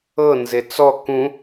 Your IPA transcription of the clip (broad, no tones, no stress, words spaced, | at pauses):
ɤ nzet͡sɔ kũ